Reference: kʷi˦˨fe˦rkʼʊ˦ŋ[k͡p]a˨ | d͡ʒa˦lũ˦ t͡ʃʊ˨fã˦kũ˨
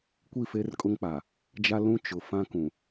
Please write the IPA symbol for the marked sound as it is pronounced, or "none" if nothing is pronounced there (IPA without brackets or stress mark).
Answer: k͡p